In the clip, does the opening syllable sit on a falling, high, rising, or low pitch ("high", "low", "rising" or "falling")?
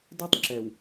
high